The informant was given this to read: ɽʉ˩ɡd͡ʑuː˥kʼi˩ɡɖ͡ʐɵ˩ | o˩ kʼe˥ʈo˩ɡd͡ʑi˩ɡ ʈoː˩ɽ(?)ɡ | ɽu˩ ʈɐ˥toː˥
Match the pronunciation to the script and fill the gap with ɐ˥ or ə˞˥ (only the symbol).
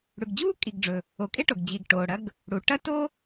ɐ˥